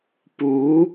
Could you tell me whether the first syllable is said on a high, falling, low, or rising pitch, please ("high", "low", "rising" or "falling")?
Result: rising